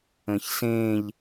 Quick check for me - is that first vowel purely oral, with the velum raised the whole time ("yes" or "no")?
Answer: no